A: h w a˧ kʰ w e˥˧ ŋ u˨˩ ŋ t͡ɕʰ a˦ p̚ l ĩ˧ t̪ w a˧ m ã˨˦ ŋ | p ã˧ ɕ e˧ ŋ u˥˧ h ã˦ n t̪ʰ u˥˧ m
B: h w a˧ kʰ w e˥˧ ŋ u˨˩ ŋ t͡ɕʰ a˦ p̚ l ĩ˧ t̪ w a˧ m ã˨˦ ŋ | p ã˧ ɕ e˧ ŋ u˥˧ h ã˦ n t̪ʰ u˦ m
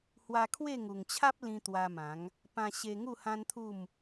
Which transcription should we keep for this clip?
A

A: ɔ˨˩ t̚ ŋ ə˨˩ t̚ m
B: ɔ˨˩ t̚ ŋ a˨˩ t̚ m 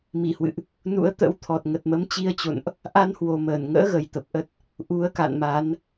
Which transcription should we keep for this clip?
A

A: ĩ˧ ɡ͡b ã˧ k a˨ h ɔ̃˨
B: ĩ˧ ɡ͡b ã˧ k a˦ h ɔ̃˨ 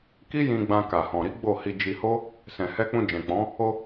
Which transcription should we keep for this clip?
A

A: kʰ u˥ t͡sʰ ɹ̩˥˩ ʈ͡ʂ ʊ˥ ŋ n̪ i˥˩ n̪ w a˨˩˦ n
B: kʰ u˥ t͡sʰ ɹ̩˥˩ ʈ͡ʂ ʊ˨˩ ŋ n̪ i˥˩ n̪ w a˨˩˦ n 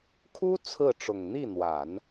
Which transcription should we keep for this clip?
B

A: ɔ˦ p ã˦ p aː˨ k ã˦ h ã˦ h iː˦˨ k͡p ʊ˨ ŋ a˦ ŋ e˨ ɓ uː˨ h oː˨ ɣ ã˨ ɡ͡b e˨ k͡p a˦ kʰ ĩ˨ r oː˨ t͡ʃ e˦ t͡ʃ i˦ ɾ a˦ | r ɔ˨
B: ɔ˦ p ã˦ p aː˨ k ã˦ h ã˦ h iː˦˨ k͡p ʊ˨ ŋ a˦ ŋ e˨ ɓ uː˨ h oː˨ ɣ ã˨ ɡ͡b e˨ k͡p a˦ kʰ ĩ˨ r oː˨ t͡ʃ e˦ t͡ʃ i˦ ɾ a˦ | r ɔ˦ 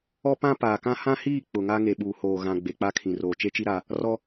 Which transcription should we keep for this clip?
B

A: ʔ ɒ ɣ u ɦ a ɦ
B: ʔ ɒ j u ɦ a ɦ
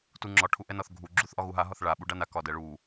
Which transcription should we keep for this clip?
A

